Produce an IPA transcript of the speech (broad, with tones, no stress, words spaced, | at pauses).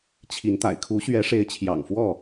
t͡ɕʰi˨˦nt̪a̰˨˩ɪ̯ kʰu˨˦ɕɥɛ˨˦ʂe˨˦ɪ̯ t͡ɕʰjɑ̰˨˩ŋfwɔ˥˨